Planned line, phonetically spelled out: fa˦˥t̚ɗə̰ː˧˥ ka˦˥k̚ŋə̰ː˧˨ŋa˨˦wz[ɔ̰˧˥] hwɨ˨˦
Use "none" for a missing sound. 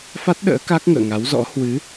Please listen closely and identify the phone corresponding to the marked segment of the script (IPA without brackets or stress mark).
ɔ̰˧˥